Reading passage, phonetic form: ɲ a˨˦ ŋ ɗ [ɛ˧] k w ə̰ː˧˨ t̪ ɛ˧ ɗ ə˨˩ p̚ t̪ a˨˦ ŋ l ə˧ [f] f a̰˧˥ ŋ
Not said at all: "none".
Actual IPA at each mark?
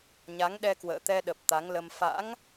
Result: ɛ˧, m

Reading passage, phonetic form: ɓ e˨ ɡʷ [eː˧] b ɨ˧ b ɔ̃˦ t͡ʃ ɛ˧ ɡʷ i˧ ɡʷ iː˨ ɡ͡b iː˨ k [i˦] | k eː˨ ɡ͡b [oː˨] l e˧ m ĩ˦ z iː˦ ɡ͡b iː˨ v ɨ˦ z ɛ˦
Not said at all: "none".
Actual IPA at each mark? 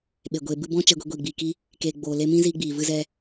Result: eː˧, i˦, oː˨

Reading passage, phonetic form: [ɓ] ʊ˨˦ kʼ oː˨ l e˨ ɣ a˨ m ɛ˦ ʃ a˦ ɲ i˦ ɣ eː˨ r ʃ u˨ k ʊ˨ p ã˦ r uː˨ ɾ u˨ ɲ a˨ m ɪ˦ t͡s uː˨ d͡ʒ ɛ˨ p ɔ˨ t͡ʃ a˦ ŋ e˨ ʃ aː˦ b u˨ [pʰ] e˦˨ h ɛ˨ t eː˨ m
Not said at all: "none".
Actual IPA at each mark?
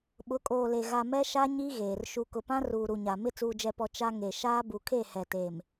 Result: ɓ, kʰ

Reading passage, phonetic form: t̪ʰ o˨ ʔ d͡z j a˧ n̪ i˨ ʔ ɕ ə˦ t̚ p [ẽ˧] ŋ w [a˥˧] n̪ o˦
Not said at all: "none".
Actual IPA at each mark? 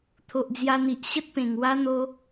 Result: ẽ˨˩, a˦

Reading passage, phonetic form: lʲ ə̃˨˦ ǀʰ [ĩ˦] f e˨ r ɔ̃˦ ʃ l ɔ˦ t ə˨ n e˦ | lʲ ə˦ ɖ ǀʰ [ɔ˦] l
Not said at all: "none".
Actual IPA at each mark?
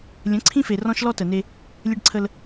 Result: ĩ˦, ə˦

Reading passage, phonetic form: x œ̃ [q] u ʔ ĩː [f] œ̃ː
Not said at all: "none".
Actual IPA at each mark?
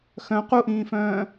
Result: q, f

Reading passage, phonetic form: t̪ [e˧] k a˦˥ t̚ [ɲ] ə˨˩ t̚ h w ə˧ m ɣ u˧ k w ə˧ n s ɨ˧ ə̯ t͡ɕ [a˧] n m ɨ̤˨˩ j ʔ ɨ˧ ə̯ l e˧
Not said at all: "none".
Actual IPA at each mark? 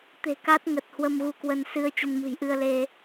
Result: e̤˨˩, ŋ, ə˧

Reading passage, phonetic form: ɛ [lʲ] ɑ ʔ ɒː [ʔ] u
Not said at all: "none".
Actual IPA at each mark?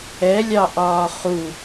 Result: lʲ, χ

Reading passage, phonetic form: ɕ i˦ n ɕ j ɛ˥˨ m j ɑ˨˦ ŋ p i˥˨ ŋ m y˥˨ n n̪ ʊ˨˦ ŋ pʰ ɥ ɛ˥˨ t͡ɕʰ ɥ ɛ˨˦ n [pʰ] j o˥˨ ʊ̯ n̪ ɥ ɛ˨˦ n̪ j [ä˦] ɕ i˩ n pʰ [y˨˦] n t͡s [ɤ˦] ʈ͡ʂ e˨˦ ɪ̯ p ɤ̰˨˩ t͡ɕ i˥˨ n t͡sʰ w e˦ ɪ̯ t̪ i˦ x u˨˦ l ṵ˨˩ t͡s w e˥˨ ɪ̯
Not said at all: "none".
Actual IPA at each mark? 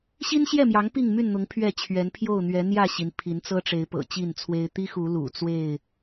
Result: pʰ, ä˥˨, i˨˦, ɤ˦

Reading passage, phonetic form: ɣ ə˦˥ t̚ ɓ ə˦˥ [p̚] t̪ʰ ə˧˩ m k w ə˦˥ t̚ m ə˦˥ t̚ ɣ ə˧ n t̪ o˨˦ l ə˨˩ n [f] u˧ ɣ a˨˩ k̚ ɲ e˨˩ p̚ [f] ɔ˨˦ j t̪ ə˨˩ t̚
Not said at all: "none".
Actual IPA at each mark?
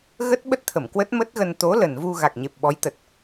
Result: t̚, v, ɓ

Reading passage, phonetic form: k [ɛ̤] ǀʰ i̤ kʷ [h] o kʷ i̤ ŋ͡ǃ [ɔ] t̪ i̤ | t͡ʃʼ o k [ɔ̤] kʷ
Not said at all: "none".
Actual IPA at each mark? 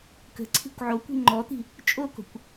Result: ə̤, ʕ, ɔ, o̤

